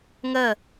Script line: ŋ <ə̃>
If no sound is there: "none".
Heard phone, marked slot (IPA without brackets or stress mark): ə